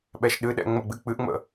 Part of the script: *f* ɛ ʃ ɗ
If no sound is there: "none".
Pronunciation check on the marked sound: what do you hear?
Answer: ɓ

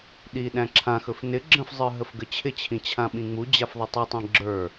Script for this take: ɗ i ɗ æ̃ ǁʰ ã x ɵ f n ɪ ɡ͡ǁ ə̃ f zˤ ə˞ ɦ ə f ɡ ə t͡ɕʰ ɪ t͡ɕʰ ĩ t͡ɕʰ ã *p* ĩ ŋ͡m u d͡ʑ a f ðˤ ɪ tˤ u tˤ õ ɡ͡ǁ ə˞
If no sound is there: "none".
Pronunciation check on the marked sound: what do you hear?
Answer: ɓ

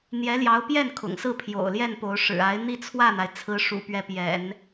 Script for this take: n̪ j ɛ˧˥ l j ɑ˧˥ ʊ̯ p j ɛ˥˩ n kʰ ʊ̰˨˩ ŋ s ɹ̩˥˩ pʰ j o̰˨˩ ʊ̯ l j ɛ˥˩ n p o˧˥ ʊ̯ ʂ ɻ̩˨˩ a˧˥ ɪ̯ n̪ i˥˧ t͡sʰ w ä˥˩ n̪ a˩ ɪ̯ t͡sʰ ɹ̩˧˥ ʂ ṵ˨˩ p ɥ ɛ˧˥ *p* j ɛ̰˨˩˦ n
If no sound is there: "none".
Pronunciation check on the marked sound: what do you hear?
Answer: p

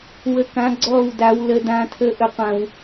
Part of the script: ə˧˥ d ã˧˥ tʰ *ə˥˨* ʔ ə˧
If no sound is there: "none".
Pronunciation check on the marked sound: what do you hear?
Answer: ə˧˥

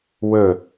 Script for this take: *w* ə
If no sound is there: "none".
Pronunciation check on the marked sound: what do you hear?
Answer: w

